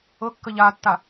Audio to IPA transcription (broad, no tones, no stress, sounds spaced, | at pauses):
ɤ kː ə ʎ a tː a